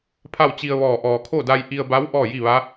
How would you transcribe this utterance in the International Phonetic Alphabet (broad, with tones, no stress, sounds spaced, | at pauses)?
pʰ a˥˨ w t͡ɕ i˧ ə̯ ʋ ɔː˧˩ ʔ ɔː˩ kʰ o˥˨ d a˧ j ʔ i˧ ə̯ b a˧˥ w ʔ ɔː˥˨ j i˥˨ ʋ a˧˥